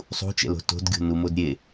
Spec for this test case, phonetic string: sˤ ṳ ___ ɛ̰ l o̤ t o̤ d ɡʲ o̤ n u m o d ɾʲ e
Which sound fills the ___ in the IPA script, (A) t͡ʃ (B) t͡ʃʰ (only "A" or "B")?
A